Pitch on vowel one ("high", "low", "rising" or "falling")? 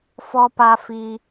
high